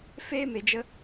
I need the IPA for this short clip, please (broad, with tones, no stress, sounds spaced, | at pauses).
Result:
f eː˦ m e˨ d͡ʒ ə˧